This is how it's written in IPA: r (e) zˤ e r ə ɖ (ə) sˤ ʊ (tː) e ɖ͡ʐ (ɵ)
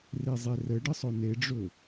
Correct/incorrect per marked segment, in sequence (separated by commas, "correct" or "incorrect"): correct, correct, incorrect, correct